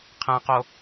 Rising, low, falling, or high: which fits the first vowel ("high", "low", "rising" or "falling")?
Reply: low